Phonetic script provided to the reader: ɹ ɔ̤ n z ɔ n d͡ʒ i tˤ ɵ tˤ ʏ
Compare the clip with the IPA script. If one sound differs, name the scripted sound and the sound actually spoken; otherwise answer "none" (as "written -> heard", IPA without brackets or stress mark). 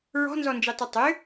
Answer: none